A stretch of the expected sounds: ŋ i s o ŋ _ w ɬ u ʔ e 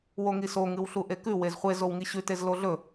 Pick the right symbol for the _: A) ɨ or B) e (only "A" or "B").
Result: A